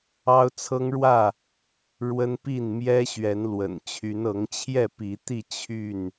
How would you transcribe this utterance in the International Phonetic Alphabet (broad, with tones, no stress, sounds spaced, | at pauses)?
ɑ˦ ʊ̯ t͡sʰ ɤ˦ ŋ ɻ w ä˥˨ | ɻ w ə˦ n p i˥˨ n m j ɛ˦ ɕ ɥ ɛ˨˦ n l w ə̰˨˩ n t͡ɕʰ y˨˦ n ɤ˨˦ ŋ t͡ɕʰ j ɛ˥˨ p i˨˦ t̪ i˥˨ t͡ɕʰ y˥˨ n